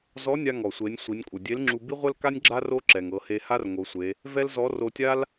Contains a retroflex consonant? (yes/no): no